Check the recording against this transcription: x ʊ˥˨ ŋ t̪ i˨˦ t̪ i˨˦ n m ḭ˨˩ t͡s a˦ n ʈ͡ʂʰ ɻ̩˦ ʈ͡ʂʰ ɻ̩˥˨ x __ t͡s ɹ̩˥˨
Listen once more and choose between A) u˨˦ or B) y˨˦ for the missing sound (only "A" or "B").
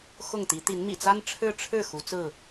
A